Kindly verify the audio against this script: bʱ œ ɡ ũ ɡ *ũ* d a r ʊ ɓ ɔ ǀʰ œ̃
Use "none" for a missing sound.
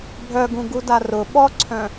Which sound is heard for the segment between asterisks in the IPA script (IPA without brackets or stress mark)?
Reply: u